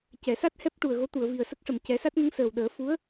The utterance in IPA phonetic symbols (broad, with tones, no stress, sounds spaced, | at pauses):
c ɛ˨˩˨ s a˦˥ t̚ h ɛ˦˥ p̚ ʈ u˨˩ ə̯ ɣ o˧˥ t̪ u˨˩˨ ə̯ v i˨˩ ə̯ s ə˦˥ k̚ ʂ ə˨˩ m c ɛ˨˩˦ s a˦˥ t̚ ŋ ə˧˥ ŋ s əː˨˩ w ɗ əː˨˩˦ f u˧˥ ə̯